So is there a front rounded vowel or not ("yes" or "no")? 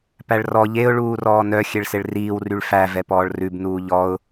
yes